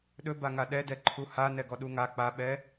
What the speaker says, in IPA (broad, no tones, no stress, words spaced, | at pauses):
ɗɵbaŋa ɗɛdɛ ǃʰuha nɛɡɔɗuŋa k͡paɓɛ